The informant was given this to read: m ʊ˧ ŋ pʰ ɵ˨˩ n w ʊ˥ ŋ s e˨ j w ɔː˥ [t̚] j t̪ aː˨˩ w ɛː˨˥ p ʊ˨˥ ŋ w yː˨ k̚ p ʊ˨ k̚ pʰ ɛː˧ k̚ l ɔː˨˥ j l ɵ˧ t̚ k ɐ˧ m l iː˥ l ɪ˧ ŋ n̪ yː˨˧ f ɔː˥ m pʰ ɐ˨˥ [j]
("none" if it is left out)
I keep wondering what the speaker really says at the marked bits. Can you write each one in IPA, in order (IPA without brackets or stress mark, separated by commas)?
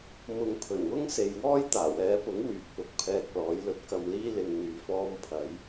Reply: none, j